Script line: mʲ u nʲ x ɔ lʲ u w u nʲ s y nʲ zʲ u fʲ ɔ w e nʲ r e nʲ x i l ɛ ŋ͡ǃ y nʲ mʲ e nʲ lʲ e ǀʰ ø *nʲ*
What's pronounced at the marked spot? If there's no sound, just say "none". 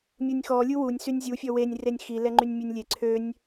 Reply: nʲ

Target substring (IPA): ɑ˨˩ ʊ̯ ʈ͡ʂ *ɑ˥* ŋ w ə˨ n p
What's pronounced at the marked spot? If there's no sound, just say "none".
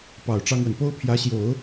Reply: ɑ˥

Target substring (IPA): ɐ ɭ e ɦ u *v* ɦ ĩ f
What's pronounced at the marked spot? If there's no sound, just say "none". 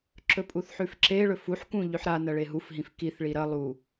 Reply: f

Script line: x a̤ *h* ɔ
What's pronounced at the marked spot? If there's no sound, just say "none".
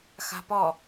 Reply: p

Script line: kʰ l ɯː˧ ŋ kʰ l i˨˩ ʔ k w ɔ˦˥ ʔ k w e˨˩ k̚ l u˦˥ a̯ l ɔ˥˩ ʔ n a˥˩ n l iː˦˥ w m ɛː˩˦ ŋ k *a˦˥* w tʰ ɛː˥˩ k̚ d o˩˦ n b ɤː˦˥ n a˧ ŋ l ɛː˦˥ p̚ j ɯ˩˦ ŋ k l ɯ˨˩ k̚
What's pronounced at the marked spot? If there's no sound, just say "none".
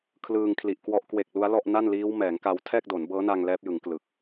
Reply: a˧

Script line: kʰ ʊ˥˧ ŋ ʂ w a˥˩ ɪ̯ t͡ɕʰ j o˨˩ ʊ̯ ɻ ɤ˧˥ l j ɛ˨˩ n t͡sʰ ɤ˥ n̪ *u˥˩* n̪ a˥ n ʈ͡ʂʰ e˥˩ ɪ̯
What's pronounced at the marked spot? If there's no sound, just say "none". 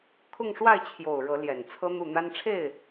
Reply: u˥˩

